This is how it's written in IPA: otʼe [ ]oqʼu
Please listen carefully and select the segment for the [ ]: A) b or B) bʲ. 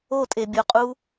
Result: B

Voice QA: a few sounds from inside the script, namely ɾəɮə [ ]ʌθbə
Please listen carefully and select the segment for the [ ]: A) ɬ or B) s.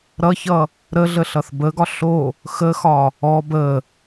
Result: A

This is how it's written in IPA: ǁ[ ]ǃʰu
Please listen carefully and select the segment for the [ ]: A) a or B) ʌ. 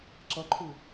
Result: B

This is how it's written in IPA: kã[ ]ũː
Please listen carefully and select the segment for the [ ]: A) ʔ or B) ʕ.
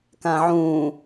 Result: B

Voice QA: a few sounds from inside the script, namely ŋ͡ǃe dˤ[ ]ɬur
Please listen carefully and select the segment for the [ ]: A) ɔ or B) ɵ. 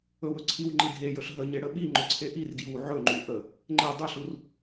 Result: B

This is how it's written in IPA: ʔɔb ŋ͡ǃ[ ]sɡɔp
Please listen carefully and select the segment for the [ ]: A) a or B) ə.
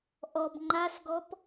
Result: A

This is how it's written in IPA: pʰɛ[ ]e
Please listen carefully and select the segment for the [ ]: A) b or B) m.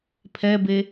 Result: A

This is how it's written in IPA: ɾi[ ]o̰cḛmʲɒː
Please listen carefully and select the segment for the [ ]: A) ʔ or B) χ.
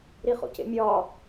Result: B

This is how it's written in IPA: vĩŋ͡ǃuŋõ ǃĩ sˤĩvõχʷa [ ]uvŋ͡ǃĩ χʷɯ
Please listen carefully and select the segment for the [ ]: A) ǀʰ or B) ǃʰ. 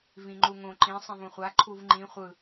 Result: B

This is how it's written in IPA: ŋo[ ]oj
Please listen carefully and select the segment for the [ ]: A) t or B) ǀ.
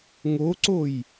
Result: B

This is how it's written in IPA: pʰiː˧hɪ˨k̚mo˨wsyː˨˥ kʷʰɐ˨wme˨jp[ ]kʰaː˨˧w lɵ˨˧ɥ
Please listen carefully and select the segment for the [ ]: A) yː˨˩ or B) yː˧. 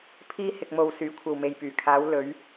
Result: A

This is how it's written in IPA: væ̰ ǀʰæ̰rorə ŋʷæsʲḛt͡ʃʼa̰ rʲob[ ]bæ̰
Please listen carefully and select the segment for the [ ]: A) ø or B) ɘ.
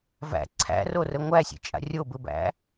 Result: B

